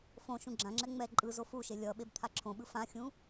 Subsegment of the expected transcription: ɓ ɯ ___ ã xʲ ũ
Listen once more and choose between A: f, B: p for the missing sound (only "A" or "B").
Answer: A